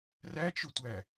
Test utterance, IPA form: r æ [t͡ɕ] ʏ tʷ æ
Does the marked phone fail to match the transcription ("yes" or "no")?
yes